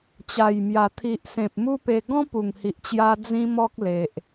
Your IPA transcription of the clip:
t͡ɕ a˨˩ j m j a˨˩ t̪ʰ i˨ ʔ s ẽ˨ p̚ m u˦ p e˧ ɡ ɔ̃˦ p u˨˩ ŋ h i˨ ʔ t͡ɕ j a˧ d͡z ĩ˦ m ɔ˦ k̚ l e˨ ʔ

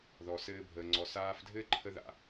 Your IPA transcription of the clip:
ð ɔ˩ s ɘː˧ bʱ əː˩ ŋ͡ǀ ɔ˩ s aː˧ f dʱ ɘː˥ ǃʰ ə˧˥ ð a̰˩

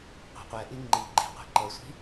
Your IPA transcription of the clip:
qʷ ɛ̤ qʷ ɛ ʔ i ŋ͡ǃ i ɡ͡ǃ i̤ qʷ e̤ ǃ ɤ sʷ i̤

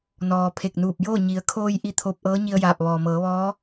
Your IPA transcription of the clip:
n ɔː˩ pʰ e˧˩ k̚ n uː˧˩ p̚ j oː˥˨ ɲ i˩˧ ə̯ kʰ oː˧ j ʔ i˧˥ t̪ʰ o˧ p̚ ʔ ɤː˧˥ ɲ i˧ ə̯ j aː˧˩ p̚ ʋ ɔː˩ m ɤː˩˧ ʋ ɔː˧˥

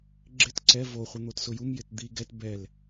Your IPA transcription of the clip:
ɡ͡ǁ ɪ t ǀ ɛ v o χʷ ɪ n̪ o t s ʊ j u m j ɪ t d̪ i ɡ ɛ t b ɛ l

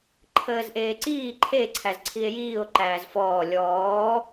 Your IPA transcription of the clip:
ǃʰ əː z ʔ eː ǀ iː ǃʰ e ǀʰ æ z ǀʰ i e̯ j iː o̯ ǃ æː z f ɔː lʲ ɔː

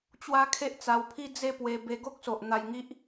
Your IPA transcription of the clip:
t͡ɕ w a˦ kʰ e˦ ʔ t͡s a˧ w pʰ i˦ d͡z e˥˧ p w e˧ b e˧ ɡ o˦ k̚ s o˨ ʔ n̪ a˧ j ŋ i˦ ʔ

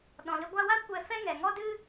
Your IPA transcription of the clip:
ɗ ɔ̃˨ l ɨ˧ ɡʷ a˧ w a˦ kʷ ɛ˧ f ɛ˦ ŋ ɛ˨ ŋ ɔ˧ d ɨ˧

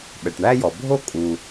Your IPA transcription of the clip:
ɓ ɛ˩ ʈ ɳ æ˥ j ɔ˩ bʱ o˥ kʼ u˩

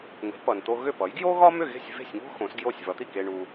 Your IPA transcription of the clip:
ŋ e̤˩˥ p ʌ˩ n t̪ o˧ ɣ ʏ˥˩ p ʌ˩˥ j ɡ j o˥ ɣ ɒ˥ m ʏ˥˩ ɣ e̤˥˩ sʲ v e̤˥˩ sʲ ŋ o̤˥ x õ˩˥ s ɡ j o˥˩ sʲ v ʌ˩˥ t̪ i˥˩ k e˧ ɳ u˧

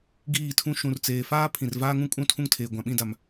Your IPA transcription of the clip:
ɡ iː˦˨ tʰ ũ˦ ʃ ũ˨ r t͡s eː˨ f aː˦ pʰ ĩ˨ r v aː˦ ŋ ũ˦ kʼ ũ˦ tʰ ũ˦ ŋ tʰ eː˨ ɡʷ ã˨ ɓ ĩ˦˨ d a˨ m

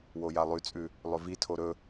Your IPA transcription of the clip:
w o j a lˠ ʉ t͡sʼ ʉ | lˠ ɵ v i tʰ o ɾ ɵ

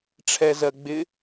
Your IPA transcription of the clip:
ʈ͡ʂʰ ɛ z ɜ ɡ͡b ɪ

